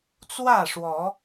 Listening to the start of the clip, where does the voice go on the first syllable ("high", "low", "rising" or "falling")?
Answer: falling